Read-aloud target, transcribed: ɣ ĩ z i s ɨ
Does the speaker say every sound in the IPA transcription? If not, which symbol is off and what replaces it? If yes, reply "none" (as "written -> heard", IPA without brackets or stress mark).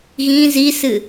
none